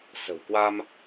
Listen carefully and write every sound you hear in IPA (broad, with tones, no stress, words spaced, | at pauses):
sə̤˨˩wkwa˧m